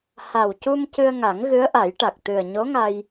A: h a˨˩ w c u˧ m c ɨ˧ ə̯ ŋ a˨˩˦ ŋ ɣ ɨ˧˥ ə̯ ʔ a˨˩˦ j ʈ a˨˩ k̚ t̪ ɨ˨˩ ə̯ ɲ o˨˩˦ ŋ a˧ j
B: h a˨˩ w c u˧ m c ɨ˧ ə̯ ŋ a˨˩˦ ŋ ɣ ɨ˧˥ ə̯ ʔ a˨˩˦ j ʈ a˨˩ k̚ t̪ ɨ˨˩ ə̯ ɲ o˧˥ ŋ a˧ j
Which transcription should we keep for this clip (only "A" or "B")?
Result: B